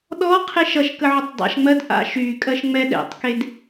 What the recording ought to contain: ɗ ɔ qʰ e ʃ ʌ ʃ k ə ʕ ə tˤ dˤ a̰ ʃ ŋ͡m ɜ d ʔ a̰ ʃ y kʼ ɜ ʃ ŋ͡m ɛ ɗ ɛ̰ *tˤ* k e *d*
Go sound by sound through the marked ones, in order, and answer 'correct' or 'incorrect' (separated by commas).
correct, correct